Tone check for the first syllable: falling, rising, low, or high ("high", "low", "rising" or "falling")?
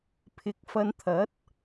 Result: rising